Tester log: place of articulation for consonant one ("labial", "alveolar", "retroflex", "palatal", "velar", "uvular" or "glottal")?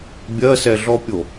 labial